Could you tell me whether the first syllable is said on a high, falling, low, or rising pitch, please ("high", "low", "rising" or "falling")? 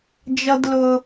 high